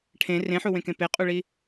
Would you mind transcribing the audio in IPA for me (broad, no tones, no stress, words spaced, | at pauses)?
ʈʰẽ rẽħuwẽkẽ peqʼuɭi